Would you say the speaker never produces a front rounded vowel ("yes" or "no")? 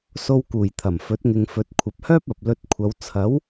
no